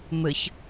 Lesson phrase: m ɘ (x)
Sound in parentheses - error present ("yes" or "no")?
yes